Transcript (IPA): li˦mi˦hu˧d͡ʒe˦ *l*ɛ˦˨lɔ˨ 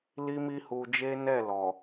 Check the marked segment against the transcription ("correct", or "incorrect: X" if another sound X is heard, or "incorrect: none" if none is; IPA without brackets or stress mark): incorrect: n